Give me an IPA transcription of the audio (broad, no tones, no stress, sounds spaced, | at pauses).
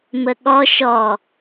m ə ɠ ɔ ʃ ɔ